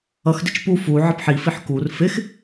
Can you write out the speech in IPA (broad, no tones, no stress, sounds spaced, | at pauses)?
ʌ x d ɪ t͡ʃ p u f u ʕ ə p ħ i f i ħ k u r f ɪ x